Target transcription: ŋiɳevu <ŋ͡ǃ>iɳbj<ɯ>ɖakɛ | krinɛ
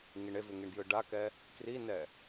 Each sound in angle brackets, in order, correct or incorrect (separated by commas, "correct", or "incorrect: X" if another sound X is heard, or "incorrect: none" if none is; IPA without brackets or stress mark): incorrect: ŋ, correct